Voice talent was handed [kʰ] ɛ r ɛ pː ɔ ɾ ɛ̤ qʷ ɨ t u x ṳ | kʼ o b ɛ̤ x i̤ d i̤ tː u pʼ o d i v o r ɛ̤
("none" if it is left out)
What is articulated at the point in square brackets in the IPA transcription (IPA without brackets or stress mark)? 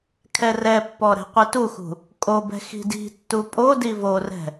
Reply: kʰ